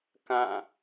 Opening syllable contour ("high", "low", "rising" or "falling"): falling